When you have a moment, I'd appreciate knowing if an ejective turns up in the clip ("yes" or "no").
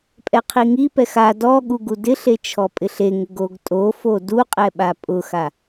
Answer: yes